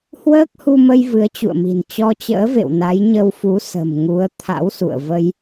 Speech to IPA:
h w əː˦˥ k̚ h u˧ m ə˧ j v ɨ˨˦ ə̯ t͡ɕ ṵ˧˨ ə̯ m i̤˨˩ n t͡ɕ ɔ˧ t͡ɕ ə̰ː˧˥ v ḛ˧˨ w n a˨˦ j ɲ ə˧ w f u˨˦ s ə̤˨˩ m ŋ u˨˦ ə̯ t̪ʰ a̰˧˥ w s ṵ˧˨ ə̯ v ə˧ j

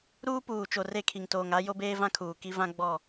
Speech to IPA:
ɾ uː˦ p uː˨ t͡ʃ o˨ r e˦˨ kʰ i˨ ŋ t oː˨ ŋ a˦ j o˦ b eː˦ v ã˦ kʰ uː˨ k i˦ v ã˦ ɡ͡b ɔ˦˨

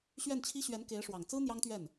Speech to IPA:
ɕ ɥ ɛ˥˩ n t͡ɕʰ i˥ ɕ ɥ ɛ˧˥ n k e˧˥ ɪ̯ ʂ w ɑ˨˩ ŋ t͡s ɹ̩˥ n̪ j ɑ˥ ŋ t̪ ɥ ɛ˥˩ n

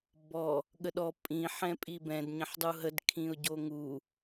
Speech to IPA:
b ɔ | ɠ ə ɗ ɔ pʼ ĩ ħ ɛ̃ pʼ i b ɛ̃ d ɲ ə̃ ħ dˤ u ɦ ə d kʰ ĩ ʊ̯ ɟ o ŋ u

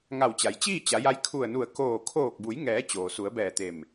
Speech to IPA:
ŋ a˧˩ w t͡ɕ a˩˧ j t͡ɕ iː˥˨ t͡ɕ a˩˧ j a˧˥ j kʰ u˧˩ ə̯ n u˧˩ ə̯ k oː˧˩ kʰ oː˧˩ k̚ b u˩˧ j ŋ ɛː˩˧ t͡ɕ oː˩ s u˩˧ ə̯ b ɛː˧˩ t̪ e˧˩ m

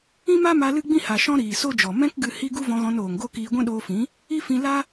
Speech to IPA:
ĩ˦ m a˦ m a˧ l ɨ˦ ɡ͡b ĩ˦ h a˨ ʃ ɔ̃˦ ɾ iː˨ s o˦ d͡ʒ ɔ˨ m ɛ̃˦ k ɡ ɨ˧ h i˦ ɡ u˦ v ɔ̃˧ ɣ ɔ̃˧ n oː˨ ŋ ɡ o˦ k iː˧ ɡʷ ɛ̃˦ ɗ oː˧ f ĩ˨˦ | i˦ f ĩ˧ l a˦

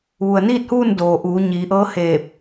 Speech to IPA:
ʋ u˩ ə̯ n iː˥˨ t̚ h uː˥˨ n d oː˩ ʔ uː˩˧ ɲ iː˩˧ ʔ ɤː˧˥ h eː˧˩ p̚

